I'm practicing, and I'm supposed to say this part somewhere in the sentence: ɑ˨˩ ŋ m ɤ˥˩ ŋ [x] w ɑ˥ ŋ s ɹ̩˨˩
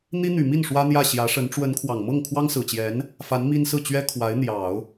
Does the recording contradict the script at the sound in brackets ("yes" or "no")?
yes